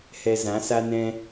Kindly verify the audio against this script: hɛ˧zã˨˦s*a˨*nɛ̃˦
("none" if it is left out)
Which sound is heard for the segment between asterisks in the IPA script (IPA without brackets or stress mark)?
a˦